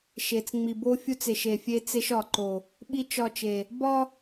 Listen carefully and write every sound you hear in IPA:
ʃ e˨ t͡s ŋ͡m i˨ b o˦ fʲ u˦ t͡s e˨ ʃ e˨ fʲ e˦ t͡s e˦ ʃ ɒ˨ ǃ o˨ | ɓ i˦ t͡ʃ ɒ˦˨ t͡ʃ e˨ | b ɒ˦

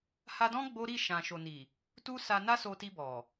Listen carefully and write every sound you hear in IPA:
h a˧ d ɔ̃˦ ɡ͡b o˦ ɾ i˦˨ ʃ ã˨ ʃ o˨ n i˨ | t u˦ s a˧ n a˦ s o˧ t i˧ b ɔ˨

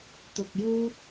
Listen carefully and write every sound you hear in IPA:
t̪ ʊ˧ k̚ j uː˥ t̚

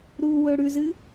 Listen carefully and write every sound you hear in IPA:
ɾ u w ɵ ɽ ʉ z ɨ

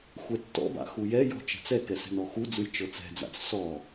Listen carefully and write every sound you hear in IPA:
xʷ ɛ tː ɔ̰ b a̰ x u j ɛ j ɔ̤ t͡ʃ ɛ̤ t͡s ɛ k ɛ s ɛ̤ n ɔ x u d͡z ɯ j t͡ʃ ɤ t͡s ɛ̤ d͡z a̰ t͡s s ɔ

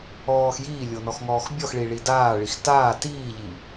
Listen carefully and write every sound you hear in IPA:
ɔː x j iː lʲ o n ɔ x ŋ ɔː x bʲ ɔ x ɭ i ɭ i d aː ɭ i x t aː t iː ʎ i

